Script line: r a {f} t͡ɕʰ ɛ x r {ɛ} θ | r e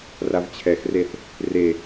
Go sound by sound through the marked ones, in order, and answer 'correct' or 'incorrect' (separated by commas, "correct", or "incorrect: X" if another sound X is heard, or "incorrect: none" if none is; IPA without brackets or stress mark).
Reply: incorrect: v, incorrect: e